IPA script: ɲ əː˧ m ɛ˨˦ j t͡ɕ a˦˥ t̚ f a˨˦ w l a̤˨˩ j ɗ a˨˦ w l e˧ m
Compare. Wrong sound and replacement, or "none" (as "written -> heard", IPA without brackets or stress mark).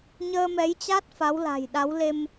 none